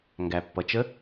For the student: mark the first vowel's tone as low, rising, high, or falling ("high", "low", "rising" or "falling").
low